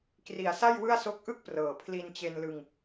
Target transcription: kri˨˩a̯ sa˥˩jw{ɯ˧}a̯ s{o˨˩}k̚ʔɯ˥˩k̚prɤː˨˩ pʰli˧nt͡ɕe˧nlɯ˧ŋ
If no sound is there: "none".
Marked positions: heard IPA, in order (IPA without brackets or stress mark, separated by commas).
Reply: ɯ˥˩, o˦˥